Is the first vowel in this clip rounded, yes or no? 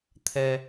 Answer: no